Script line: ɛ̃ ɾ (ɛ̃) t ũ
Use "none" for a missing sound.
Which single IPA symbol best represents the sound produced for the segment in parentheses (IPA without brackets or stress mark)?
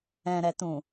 ɛ